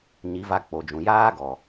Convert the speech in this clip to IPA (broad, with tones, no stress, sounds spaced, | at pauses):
ɲ i˨˦ v a˧ k͡p o˨ d͡ʒ ũ˨ j aː˦ ɡ ɔ˨